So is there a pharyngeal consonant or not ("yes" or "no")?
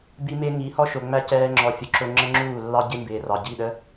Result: no